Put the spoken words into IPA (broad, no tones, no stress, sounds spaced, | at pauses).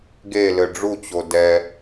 ɡ e l ɘ ɖ͡ʐ u t͡ɕ o d ɛ